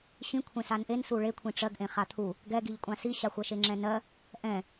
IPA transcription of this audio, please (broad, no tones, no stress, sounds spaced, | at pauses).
ɕ ĩ kʷʰ ẽ s a n ʔ e n s u ɭ e kʷʰ ĩ ʈ͡ʂ ɜ ɡ ʔ ẽ χ a t̪ʰ u | ɡ ɛ ɡ i ʎ kʷʼ ã s i ɕ a xʷ ɜ ʃ e ŋ͡ǁ ɛ̃ n ɜ | ʔ ɛ̃